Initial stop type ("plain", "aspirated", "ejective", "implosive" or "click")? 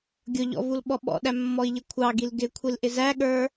plain